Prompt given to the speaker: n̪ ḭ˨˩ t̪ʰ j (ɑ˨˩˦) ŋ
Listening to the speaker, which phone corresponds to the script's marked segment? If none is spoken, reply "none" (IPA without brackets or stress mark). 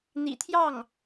ɑ˥˩